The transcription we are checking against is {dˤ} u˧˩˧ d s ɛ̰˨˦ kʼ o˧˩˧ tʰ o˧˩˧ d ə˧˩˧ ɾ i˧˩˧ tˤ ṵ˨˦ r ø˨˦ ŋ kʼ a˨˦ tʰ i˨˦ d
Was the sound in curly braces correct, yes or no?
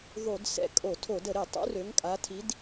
no